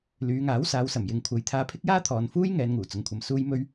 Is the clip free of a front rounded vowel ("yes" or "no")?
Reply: no